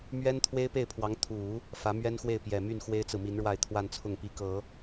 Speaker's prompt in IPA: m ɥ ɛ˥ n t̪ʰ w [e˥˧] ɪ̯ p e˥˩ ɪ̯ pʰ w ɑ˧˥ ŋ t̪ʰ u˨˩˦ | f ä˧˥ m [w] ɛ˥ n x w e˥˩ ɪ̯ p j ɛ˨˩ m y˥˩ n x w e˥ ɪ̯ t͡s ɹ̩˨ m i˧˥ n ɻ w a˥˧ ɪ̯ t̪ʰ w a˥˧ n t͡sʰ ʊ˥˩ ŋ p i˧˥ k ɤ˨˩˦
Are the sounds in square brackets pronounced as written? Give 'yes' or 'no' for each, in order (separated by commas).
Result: no, no